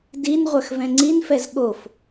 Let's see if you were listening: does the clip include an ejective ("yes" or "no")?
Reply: no